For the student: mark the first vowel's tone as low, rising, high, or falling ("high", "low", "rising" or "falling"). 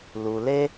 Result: low